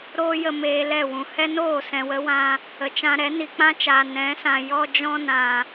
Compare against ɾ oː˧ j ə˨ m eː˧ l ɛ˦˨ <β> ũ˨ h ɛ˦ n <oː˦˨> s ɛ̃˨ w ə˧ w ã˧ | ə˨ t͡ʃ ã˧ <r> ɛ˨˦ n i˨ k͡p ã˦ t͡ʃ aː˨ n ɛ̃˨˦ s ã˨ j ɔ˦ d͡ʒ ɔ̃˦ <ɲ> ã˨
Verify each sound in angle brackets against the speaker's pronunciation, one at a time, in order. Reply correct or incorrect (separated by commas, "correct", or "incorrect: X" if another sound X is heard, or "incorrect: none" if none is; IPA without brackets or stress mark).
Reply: incorrect: w, correct, incorrect: ɾ, incorrect: n